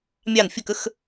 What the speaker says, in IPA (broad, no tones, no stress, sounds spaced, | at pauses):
mʲ ɑ n fʲ ə k ə x